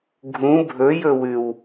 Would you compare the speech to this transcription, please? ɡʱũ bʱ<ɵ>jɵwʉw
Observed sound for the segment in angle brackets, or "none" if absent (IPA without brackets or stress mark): ɵ